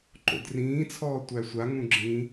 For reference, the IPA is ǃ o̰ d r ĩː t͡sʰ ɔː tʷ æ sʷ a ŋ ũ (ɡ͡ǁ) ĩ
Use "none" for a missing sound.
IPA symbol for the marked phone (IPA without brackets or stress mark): ɡ͡ǁ